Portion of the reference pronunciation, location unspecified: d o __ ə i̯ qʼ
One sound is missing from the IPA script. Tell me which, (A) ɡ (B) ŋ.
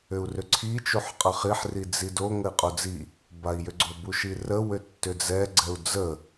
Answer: B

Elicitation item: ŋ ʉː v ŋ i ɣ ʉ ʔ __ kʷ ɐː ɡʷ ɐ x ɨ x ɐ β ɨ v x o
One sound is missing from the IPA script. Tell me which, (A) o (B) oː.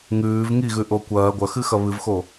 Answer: A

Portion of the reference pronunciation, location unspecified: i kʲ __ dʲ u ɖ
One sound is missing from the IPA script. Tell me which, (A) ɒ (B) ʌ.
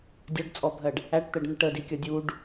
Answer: B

